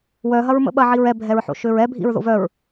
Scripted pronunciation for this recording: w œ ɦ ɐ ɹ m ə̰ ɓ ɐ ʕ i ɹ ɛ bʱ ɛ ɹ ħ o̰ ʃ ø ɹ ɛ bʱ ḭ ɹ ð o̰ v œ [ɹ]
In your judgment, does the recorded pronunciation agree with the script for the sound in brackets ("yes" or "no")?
yes